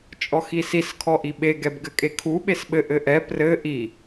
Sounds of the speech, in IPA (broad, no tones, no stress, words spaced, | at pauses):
t͡ʃʼɔxisis kʰɔʔiɓe ɡɛbɡɘkʼekʰu ɓesɓɘʔ ɘʔɛ prɘ ʔi